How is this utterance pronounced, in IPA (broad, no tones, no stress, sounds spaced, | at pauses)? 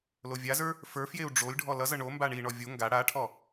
l o vʲ a z ə˞ | f ə˞ f j e u̯ ɖ͡ʐ o lʲ ɖʱ ɔ l ʌ z ʌ ɳ o m b a ɳ i ɳ ɔ vʲ o ŋ ɡ a ɽ a ʈʰ ɔ